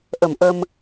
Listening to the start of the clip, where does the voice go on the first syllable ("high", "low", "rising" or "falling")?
low